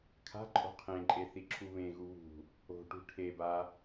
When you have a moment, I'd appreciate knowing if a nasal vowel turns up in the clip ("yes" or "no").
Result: yes